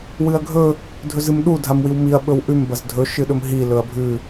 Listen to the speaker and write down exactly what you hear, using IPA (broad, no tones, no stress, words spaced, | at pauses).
wɨɐ̯ɡʱɵ | dʱɵzɨmɗu dʱamwiwmiɐ̯ ɓɵwʔʉm bɐzdʱɵ ʃɨɗɵmɦi lɵɐ̯bʱʉ